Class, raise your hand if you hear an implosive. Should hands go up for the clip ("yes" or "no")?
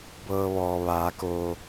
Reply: no